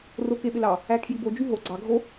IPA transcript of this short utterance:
r o k e ɓ ɪ l ɑ | æ kʰ j i b o d͡ʒ y ɦ o ɡ͡ǀ ɑ ɡʱ o

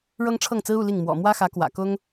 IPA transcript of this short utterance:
ɻ ɤ˥ ŋ ʈ͡ʂʰ ɤ˥˩ ŋ t͡s ɹ̩˥ u˥˧ l i˥˩ ŋ m w ɔ̰˨˩ m w ä˥ x ä˧˥ k w ä̰˨˩ k ʊ˥ ŋ

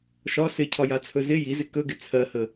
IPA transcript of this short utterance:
ʃ ɒ s ɪ cʰ ɒ j a t͡sʰ ɵ z ɪ j i z ɪ k ɵ ɡ ɪ t͡sʰ ɜ h ə

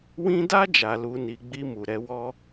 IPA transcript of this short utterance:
w ĩ˦ d a˦ d͡ʒ a˧ l u˧ n i˧ ɡ͡b i˧ m u˨ ɾ ɛ˧ w ɔ˦

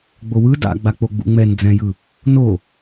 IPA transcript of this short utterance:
ɡ͡b o w ɯ d a̰ ɡ͡b a k͡p o ɡ͡b ṵ ŋ͡m ɛ n d͡z ɛ̃ j ɯ | n o

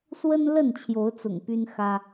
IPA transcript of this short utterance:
s w ə˦ n l ə˥˨ n t͡ɕʰ j o˨˦ ʊ̯ t͡s ʊ̰˨˩ ŋ p y˦ n x ä˦

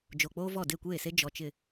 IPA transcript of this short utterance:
d͡ʒ o˨ k͡p oː˦ v ɔ˦˨ d e˦˨ kʷ eː˦˨ s e˦ d͡ʒ ɔ˨ t͡ʃ ɪ˨

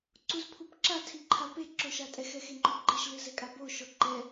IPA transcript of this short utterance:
ǀ u z pʰ u p ǁ a tʰ i ǃʰ a p e ǁ o ʃ a tʼ ɛ x ɛ x e ŋ͡ǃ ɔ ɡ͡ǃ e ʃ l ɨ z ɛ kʼ a b o ʃ ɔ ǃ ɛ

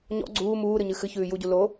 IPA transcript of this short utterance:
ɲ ɔ̰ ɡ͡ǀ uː m uː ɾ ɨ ɲ ɨ x ɨ ç ʉː j u ɟ u l o

